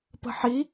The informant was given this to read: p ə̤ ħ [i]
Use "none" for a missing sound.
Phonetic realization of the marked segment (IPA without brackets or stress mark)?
i